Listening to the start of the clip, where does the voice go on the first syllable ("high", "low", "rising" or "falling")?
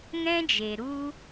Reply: high